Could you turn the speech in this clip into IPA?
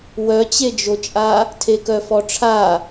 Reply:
w œ t͡ɕ e d͡ʒ o t͡ʃʼ a | tʰ e k œ f ɔ ʈ͡ʂʰ a

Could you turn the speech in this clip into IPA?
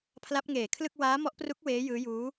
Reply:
pʰ l a˦˥ p̚ ŋ eː˨˩ kʰ l ɯ˥˩ k̚ w aː˦˥ m ɔ˦˥ ʔ p r u˦˥ k̚ w eː˦˥ j ɯː˦˥ j uː˦˥

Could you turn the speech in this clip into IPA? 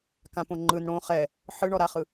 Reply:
k ã p õ ŋ͡ǃ ɯ n ɽ õ χ ɛ | ħ ɯ ɳ ɔ ɾ a χ ɯ

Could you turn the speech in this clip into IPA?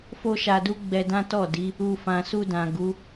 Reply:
f o˦ ʃ a˧ d u˦ ɡ͡b ɛ˧ d ã˦ t ɔ˦˨ d i˨˦ | u˨ f ã˨ s u˧ d ã˨ ɡ u˨˦

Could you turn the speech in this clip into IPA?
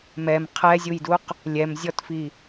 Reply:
m ɛ m qʰ ɛ zʲ u j d u q | lʲ ɛ m zʲ ɔ t f i

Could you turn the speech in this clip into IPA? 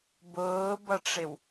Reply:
b ʊː b ʌ ʈ͡ʂ ɪ w

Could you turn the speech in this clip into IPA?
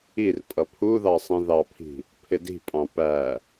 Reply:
i r pʼ ʌ pʰ u ð ɑ sˤ ĩ ð ɑ pʰ i̤ | pʰ ɪ d i̤ pʼ ɑ̃ p æ

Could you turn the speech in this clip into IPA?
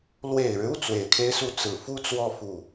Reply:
l w e˨˩ ɪ̯ ɻ ɻ̩˦ u˥˩ t͡s w e˨˩ ɪ̯ kʰ e˥ ɪ̯ s u˥˩ t͡s ɹ̩˨˩ f u˥ t͡s w ɔ˥˧ f u˥˩

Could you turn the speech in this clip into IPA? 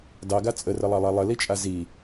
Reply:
d ɑ ɡ a t͡sʼ ə r ə lˠ ɑ lˠ a lˠ ə l i t͡ʃʼ a z i

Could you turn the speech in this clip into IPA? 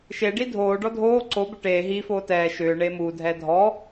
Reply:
ʃ e ɖ i dʱ oː ɖ ɔ dʱ oː ǀ o b ʏ ʈ eː ɦ iː f oː t ɛː ʃ ʏː ɳ eː m uː dʱ ɛː dʱ ɔ

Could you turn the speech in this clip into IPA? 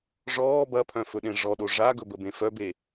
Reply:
ʐ ɔː b ɐ pʰ œ̃ f ɵ ɗ ẽ ʐ ɔ ɗ o ʐ a ɡ ɵ b ə b ẽ f œ b e

